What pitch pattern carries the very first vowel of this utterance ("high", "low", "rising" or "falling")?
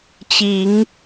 rising